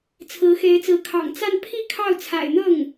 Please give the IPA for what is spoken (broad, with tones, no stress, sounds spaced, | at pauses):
t͡sʰ ɹ̩˧˥ x e˧˥ ɪ̯ t͡s ɹ̩˧˥ kʰ ɑ̰˨˩ ŋ t͡s a˥˧ n pʰ i˥˧ kʰ ɑ˥˩ ʊ̯ t͡sʰ a̰˨˩ ɪ̯ n̪ ɤ˥˩ ŋ